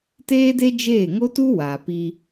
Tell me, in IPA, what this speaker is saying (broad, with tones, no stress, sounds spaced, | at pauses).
t eː˦ d e˦ d͡ʒ eː˦˨ ŋ o˦ t u˦ w a˨ p i˦